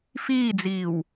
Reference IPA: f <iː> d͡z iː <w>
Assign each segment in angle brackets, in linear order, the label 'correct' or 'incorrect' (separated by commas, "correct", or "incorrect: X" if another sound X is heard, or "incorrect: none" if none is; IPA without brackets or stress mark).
correct, correct